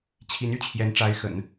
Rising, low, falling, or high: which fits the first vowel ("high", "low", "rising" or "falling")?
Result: rising